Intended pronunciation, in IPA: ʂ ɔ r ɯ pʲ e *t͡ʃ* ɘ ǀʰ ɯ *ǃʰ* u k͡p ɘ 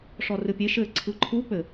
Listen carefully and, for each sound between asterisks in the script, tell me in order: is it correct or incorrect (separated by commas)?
incorrect, correct